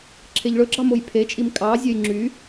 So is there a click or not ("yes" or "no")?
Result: yes